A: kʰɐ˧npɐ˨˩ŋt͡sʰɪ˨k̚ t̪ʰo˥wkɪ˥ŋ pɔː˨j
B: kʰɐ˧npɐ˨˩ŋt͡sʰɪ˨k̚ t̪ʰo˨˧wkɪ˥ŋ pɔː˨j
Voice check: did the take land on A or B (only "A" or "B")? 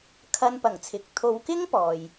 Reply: B